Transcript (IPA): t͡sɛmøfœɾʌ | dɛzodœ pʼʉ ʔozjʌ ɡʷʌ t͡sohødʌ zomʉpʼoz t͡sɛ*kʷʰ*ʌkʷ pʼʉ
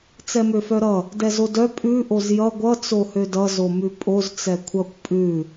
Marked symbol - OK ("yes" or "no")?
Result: yes